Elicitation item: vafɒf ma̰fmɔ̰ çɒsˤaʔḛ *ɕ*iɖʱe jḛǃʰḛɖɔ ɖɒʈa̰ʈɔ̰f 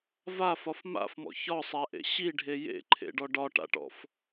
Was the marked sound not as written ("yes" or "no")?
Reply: no